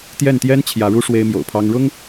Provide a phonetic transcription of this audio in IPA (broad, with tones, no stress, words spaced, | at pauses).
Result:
t̪jɛ˥˩nt̪jɛ˥n t͡ɕʰjä˧˥ɻu˥ ʂwe˥ɪ̯mjo̰˨˩ʊ̯pʰɑ˥ŋ ɻʊ˥ŋ